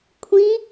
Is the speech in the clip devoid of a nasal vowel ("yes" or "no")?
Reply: no